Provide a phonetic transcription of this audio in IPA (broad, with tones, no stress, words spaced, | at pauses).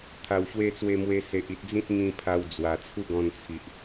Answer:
t̪ʰa˨˩wɕwe˧t͡swe˧ mwe˧se˨ʔ i˨t̚d͡zĩ˦t̚ ŋĩ˧pʰa˧w d͡zwa˨˩t͡sʰu˥˧ɡɔ̃˧n t͡sʰi˨ʔ